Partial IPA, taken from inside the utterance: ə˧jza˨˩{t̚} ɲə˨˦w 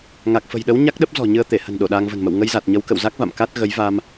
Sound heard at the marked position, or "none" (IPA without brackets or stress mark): t̚